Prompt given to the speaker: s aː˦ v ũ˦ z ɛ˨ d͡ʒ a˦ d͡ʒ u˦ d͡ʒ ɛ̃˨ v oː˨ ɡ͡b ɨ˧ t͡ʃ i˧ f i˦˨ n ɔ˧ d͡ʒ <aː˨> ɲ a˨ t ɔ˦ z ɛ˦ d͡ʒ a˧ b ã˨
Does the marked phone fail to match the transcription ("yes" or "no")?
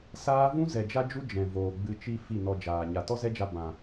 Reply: no